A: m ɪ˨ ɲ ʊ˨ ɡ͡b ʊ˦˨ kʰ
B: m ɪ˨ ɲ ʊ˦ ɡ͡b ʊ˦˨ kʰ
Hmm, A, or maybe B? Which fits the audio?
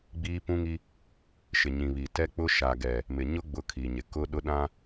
B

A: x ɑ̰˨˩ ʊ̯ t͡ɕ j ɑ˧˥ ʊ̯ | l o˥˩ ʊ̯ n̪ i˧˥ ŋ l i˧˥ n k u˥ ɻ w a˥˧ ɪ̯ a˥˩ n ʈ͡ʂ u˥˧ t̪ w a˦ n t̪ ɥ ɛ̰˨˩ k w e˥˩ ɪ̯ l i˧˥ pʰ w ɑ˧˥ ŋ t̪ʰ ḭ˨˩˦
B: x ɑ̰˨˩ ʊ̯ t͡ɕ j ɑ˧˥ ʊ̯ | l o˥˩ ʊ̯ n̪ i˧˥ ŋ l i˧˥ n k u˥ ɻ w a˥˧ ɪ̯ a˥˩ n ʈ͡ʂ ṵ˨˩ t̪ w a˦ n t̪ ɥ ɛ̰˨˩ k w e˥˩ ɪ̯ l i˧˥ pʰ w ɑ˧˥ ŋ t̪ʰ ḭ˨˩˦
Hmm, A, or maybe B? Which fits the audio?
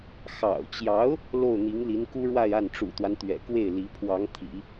B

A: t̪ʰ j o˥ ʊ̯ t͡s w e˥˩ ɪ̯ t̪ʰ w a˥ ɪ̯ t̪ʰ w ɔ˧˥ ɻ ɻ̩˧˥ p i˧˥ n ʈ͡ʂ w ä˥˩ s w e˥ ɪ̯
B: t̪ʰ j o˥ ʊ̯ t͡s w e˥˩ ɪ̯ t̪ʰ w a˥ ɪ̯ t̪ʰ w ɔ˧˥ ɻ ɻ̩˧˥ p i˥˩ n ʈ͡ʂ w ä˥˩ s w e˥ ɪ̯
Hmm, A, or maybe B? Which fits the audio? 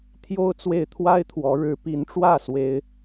A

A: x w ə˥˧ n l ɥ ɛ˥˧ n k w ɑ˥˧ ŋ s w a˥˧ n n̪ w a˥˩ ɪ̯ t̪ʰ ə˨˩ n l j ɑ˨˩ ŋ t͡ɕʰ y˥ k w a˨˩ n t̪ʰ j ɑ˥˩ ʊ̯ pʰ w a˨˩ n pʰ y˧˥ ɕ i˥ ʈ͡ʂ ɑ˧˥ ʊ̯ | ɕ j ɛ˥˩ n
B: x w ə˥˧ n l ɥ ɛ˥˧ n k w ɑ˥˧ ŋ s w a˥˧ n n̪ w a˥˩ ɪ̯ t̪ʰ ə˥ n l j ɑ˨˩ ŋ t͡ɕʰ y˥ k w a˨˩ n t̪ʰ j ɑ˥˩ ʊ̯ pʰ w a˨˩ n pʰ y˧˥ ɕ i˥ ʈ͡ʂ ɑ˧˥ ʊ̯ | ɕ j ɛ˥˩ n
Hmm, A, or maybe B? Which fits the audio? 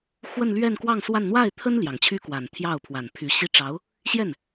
B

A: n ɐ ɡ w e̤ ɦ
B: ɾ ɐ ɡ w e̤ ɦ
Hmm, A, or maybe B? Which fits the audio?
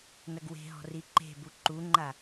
A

